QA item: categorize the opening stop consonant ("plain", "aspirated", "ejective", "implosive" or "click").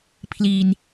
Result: aspirated